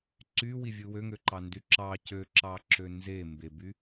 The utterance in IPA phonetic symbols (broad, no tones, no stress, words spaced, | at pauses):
ǀywivʲɯ wøŋøǃɑndy ǁɑ cøǁɑǁø nze mbeby